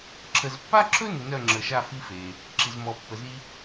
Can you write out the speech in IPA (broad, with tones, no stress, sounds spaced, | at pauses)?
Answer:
ǁʰ ə˨ z pː a˥ ǁʰ ɵ˥ n ə˨ n œ˥˧ ŋ͡ǁ ə˨ ʃ a˥˧ f i˥ f e˨ | ǁ i˨ z m ɔ˨ pː ə˨ z i˥